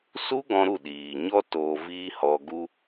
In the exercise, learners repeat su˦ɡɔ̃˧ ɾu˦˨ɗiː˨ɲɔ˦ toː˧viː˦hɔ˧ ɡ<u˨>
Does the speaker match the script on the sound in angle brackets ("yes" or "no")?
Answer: no